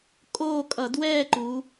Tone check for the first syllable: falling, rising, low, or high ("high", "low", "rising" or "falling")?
falling